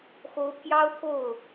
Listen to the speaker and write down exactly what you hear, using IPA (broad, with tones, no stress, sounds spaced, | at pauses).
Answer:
x o˧˥ ʊ̯ pʰ j ɑ˥ ʊ̯ t̪ʰ o˥˩ ʊ̯